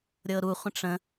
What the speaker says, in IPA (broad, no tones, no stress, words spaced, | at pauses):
ɾʲɤɾuχʷə̃ ʈ͡ʂə̃